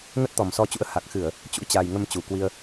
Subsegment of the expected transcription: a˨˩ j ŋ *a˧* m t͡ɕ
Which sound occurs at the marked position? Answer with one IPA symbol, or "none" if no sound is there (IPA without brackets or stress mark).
ə˧